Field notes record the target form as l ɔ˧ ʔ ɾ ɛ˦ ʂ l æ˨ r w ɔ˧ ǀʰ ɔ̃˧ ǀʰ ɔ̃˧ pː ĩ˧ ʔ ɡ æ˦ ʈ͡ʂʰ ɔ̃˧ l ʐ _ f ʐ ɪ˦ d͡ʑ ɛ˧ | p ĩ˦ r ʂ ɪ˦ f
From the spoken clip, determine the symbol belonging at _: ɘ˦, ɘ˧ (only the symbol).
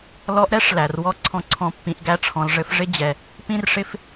ɘ˧